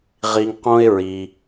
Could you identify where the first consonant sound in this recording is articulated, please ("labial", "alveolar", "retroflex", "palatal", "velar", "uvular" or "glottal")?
uvular